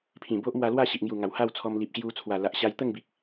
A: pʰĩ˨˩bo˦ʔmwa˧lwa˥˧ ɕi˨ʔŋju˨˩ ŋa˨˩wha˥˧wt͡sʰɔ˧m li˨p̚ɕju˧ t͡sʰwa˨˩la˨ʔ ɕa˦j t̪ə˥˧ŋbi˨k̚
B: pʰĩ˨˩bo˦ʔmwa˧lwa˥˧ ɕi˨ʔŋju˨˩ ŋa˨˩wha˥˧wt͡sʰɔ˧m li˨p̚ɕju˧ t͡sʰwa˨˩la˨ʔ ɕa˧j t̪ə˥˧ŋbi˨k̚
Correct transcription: B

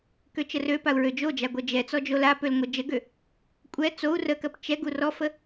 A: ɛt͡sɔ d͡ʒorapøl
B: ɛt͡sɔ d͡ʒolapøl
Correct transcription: B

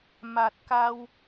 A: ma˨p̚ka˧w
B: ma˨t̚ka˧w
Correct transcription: B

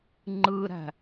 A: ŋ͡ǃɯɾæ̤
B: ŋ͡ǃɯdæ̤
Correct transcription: A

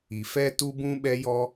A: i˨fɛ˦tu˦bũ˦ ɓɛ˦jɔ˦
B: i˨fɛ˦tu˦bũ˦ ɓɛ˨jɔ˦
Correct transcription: A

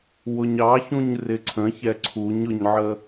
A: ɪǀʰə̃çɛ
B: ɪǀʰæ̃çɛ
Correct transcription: A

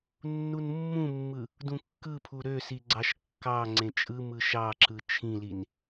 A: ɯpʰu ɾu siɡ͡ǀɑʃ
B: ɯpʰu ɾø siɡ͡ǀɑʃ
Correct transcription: B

